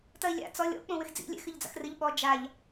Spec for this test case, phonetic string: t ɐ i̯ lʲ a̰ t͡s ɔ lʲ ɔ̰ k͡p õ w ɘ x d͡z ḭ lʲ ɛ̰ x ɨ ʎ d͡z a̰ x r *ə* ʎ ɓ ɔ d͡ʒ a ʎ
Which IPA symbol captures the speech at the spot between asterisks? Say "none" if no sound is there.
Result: ɨ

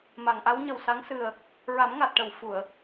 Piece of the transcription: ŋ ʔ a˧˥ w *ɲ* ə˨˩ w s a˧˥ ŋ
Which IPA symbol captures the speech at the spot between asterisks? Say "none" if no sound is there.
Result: ɲ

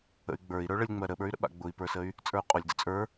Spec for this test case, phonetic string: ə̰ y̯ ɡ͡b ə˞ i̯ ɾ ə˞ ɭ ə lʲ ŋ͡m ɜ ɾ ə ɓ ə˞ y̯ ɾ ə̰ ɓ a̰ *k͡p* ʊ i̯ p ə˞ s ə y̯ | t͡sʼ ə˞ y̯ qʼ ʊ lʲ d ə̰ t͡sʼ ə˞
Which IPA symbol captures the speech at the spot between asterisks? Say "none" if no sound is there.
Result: ɡ͡b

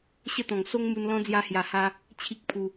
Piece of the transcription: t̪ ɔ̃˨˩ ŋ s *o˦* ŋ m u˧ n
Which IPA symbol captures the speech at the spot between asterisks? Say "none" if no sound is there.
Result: o˦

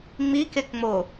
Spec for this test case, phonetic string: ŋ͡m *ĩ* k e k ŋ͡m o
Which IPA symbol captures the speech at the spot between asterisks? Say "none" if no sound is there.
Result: i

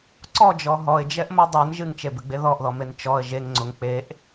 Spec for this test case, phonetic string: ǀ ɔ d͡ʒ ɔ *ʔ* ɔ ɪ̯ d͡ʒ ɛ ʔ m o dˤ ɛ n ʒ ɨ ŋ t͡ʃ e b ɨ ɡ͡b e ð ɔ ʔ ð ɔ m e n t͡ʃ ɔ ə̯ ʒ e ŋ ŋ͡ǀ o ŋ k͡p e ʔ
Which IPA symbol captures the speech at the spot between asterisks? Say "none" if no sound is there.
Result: ɦ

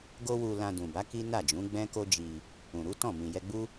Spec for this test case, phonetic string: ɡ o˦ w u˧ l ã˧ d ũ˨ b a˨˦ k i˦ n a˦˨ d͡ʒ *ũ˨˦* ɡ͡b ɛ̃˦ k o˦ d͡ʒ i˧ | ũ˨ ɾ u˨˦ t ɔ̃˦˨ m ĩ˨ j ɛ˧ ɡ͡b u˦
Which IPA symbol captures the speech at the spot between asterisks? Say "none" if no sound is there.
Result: ũ˨˦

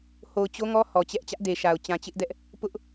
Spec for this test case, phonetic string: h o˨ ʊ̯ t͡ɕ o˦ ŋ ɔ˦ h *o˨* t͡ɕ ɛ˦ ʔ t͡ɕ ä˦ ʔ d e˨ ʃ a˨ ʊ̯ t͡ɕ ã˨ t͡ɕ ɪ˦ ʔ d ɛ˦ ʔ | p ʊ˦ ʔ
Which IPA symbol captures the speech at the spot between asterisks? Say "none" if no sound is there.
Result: ɔ˨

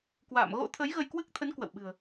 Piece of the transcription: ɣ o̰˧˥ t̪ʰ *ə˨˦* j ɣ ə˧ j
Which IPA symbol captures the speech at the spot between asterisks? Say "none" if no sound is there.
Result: ə˨˦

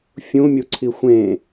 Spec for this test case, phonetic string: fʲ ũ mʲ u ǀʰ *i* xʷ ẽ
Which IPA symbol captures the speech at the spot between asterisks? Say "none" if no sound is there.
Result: i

